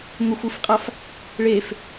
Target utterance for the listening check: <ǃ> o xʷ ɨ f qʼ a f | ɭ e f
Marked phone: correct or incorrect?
incorrect